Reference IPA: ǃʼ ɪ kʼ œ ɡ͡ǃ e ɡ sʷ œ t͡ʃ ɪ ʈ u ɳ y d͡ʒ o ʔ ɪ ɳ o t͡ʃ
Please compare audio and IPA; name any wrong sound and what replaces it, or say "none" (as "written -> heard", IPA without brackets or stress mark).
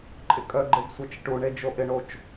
y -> e